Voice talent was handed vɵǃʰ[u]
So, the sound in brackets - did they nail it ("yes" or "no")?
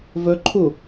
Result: yes